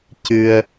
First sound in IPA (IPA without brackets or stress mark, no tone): c